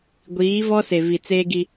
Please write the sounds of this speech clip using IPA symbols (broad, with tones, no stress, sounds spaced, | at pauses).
ɡʷ iː˨˦ v ɔ˦ s e˨ v i˨ t͡s eː˦ ɡ i˦